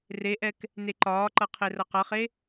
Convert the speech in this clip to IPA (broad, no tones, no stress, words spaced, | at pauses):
reʔɛk | neǃɒːǃʌ qʰerʌqʌχe